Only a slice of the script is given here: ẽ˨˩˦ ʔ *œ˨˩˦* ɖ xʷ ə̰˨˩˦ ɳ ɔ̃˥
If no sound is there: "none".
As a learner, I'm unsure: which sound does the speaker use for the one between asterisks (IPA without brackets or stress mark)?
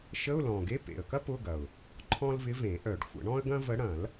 œ˨˩˦